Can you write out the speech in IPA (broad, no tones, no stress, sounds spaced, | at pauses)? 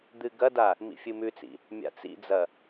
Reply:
d̪ ɨ ɡ ɐ d a | m ḭ fʲ ɨ m ʉ t͡s ḭ | mʲ a̰ t͡s ḭ d͡z ɐ